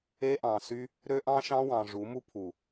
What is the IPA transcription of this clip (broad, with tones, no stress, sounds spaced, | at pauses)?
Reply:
e˦ ʔ ɑ̃˨ s y˦ | ɾ ø˦ ʔ ɑ̃˦ ʃ ɑ̃˦ w ɑ̃˨ ʐ u˨˦ m u˦ pʰ u˨